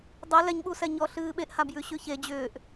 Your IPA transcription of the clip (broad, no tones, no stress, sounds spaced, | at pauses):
dˤ e l ɛ ɲ ɓ u s ɛ ɲ ɔ ɬ ɨː ɓ e ʔ h a b j ʉ ɕ ʉ ç e d͡ʑ ʏː ʔ